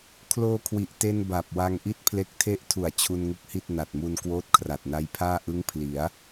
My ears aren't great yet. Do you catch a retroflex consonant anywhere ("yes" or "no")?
no